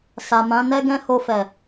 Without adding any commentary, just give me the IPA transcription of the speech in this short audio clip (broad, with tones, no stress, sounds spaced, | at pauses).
s a˨ m ã˨˦ n ɛ˦ ɡ ɛ̃˦ h o˧ f ɛ˨